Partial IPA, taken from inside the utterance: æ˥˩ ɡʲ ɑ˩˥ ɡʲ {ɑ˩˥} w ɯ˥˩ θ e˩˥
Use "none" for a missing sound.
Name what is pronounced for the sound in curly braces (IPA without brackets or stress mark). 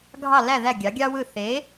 ɑ˥